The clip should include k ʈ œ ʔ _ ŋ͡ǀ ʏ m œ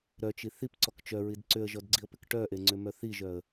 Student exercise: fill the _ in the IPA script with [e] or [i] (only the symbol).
e